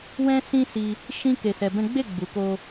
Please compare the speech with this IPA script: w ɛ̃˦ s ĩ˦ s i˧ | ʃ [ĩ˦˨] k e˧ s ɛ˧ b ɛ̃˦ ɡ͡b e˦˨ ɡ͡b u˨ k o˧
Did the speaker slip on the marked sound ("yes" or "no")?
yes